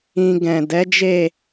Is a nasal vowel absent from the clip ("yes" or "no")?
no